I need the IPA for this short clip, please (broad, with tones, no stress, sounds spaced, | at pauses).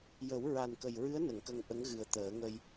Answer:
j ə˨˩˦ w ɹ a˨˩ n k ə˨˩ j ɹ ɨ˧˥ ə̯ n ə˨˩˨ ŋ k ə˧ ŋ ʔ ə˧˥ ŋ ɣ ɨ˨˩ ə̯ t̪ əː˨˩˦ ŋ ə˧ j